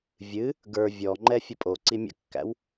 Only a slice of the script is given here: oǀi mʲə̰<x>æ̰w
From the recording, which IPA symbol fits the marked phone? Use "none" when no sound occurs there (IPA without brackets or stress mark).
kː